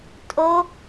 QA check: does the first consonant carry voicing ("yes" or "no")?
no